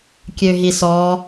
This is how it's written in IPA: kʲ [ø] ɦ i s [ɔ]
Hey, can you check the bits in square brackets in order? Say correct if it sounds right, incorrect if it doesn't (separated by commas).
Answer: correct, correct